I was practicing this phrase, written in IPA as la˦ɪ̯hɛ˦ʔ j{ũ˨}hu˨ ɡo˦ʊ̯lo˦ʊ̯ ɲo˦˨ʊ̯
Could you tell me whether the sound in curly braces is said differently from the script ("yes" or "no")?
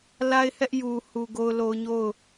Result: yes